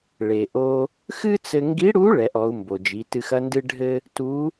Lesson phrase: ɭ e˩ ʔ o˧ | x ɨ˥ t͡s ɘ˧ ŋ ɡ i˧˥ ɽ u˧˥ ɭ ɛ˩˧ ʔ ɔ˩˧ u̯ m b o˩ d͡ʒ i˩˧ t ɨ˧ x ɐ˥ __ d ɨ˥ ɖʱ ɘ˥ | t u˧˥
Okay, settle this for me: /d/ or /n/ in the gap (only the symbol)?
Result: n